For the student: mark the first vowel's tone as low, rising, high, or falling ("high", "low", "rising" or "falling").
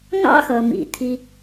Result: high